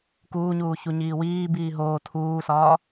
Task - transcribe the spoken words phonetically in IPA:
kuːɲuː çuɲiːwiː biːɦoː tʰuːsɒː

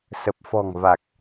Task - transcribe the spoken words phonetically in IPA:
sə˨˩p̚fɔ̤˨˩ŋva˨˩k̚

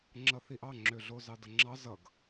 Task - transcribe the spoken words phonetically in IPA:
ŋ͡ǁʌθiʔɑŋ͡ǁø ɮozɑdʌŋ͡ǁɑ zʌɡ

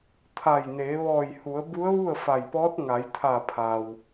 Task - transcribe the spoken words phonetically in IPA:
t̪ʰa˧˩jneː˩˧ ʋɔː˧˩jhu˩˧ə̯ bu˧˥ə̯ʋu˥˨ə̯ fa˧˩jpɔː˧˥t̚ ŋa˩˧jt̪ʰa˧˩pʰa˩w

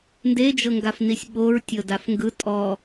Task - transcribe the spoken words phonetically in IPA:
nded͡ʒɤŋɡafnisʲ ɓoɹtʲɤdaf ŋɡɯ tʼɔ

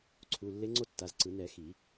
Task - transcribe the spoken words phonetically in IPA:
ǀʰu˩˧˩ lːe˧˥ŋ͡ǀo˥˧tːa˩˧˩zǀɯ˨˩˦ nɛ˨˩˦xi˨˩˦

